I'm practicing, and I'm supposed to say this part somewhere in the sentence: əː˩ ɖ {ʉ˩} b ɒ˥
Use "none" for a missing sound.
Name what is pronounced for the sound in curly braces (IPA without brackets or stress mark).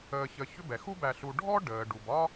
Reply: u˩